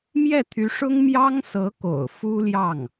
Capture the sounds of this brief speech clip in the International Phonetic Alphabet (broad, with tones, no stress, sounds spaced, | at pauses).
m j ɛ˥˩ t̪ʰ y˧˥ ʂ ʊ˥ ŋ m j ɑ˥ ŋ s ɤ˧˥ k o̰˨˩ ʊ̯ f u˥ l j ɑ˥˩ ŋ